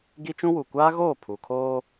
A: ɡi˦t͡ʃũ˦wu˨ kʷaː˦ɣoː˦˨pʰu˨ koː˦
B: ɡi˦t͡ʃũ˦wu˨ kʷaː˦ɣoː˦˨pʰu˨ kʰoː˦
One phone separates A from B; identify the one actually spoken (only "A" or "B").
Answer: B